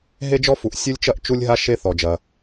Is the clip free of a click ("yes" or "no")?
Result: yes